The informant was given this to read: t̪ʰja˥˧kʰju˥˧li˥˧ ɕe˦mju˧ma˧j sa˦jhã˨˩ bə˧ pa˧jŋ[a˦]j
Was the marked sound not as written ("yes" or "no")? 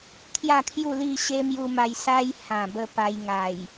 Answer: yes